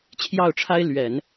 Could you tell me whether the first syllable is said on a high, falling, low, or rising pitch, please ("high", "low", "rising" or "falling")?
falling